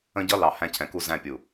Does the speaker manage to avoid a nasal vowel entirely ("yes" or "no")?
no